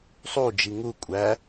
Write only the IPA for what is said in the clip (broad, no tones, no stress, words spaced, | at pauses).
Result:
sˤud͡ʒi ŋu kʷʼæ